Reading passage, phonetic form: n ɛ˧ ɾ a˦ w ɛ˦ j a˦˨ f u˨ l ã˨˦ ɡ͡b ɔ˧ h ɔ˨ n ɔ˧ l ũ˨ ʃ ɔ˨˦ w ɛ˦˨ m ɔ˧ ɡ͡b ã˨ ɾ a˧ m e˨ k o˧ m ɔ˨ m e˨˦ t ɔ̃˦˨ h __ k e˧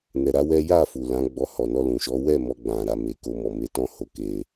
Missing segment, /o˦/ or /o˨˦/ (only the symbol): o˨˦